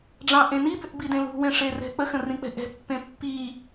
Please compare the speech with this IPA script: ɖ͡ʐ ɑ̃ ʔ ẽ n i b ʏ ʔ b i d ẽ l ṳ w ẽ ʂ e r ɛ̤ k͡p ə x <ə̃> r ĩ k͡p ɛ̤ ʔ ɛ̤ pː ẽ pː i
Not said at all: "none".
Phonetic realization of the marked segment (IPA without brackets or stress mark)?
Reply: ə̃